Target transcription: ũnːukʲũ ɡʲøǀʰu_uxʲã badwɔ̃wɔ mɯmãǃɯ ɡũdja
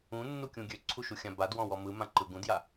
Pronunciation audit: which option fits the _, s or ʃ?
ʃ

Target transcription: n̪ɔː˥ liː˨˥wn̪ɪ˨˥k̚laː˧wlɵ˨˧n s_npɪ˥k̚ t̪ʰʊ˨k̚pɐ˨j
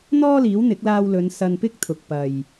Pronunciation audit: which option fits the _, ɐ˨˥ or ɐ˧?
ɐ˧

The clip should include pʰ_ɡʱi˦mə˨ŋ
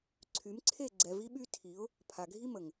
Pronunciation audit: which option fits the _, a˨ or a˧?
a˨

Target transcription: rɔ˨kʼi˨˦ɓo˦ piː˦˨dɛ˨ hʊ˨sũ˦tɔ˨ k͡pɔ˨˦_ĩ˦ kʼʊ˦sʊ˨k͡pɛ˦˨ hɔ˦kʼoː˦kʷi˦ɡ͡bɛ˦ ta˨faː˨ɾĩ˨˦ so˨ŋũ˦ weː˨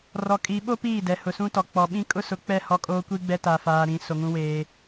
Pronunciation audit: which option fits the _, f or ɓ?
ɓ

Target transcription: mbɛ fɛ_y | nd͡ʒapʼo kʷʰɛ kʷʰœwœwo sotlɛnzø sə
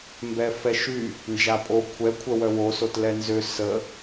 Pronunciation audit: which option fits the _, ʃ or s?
ʃ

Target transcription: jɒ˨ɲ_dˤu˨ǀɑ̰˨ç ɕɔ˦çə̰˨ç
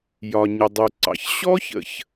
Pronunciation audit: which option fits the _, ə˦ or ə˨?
ə˨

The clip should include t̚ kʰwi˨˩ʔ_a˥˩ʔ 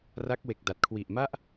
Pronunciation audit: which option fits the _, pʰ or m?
m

